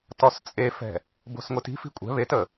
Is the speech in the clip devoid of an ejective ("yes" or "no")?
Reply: no